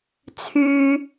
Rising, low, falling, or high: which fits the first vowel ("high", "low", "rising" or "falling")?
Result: low